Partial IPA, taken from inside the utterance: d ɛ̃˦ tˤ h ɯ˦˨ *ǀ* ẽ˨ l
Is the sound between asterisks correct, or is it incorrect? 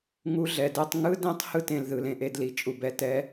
incorrect